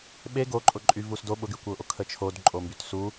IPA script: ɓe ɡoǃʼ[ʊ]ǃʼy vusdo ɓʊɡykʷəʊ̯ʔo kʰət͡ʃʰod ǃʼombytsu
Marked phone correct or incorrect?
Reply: correct